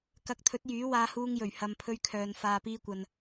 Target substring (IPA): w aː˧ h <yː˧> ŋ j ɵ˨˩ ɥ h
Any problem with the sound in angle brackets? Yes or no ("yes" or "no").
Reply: yes